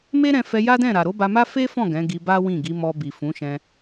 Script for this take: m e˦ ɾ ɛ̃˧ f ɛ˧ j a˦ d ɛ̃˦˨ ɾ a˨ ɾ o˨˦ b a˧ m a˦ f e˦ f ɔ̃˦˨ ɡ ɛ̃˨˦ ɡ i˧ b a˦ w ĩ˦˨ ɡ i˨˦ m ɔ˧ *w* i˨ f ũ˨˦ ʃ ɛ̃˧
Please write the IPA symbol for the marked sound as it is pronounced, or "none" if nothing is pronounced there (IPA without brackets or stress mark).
b